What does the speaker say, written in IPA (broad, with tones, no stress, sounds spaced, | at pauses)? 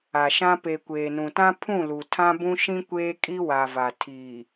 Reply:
a˨ ʃ ã˦ p e˨ kʷ eː˨ n ũ˨ t ã˦ pʰ ũ˦˨ l u˨ tʰ ã˦ b ũ˦ ʃ ĩ˦ kʷ eː˦ kʼ i˦ w a˨ v a˨ tʰ iː˨